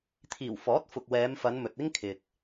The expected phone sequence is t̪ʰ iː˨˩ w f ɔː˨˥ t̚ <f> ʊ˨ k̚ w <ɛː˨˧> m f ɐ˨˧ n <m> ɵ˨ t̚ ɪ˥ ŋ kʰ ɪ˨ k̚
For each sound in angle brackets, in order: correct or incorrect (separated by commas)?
correct, correct, correct